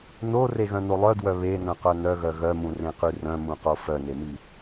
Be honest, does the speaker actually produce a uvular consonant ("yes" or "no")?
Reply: yes